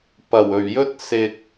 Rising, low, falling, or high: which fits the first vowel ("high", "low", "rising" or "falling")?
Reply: low